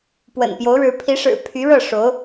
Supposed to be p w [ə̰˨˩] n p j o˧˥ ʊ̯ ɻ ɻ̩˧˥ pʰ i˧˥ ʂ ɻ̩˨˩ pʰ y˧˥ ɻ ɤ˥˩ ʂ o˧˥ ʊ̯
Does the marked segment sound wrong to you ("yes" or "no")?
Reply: no